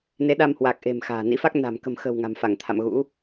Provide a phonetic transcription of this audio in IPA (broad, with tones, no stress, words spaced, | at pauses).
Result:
ne˨˦ɗa˧mhwa˨˩k̚ ʔe̤˨˩m xa̤ː˨˩nḭ˧˥fa˦˥k̚ na̤˨˩mkə̤˨˩mxə̤˨˩w ŋa̤˨˩mfa˧˩ŋt̪ʰa̰˧˨mɣṵ˧˥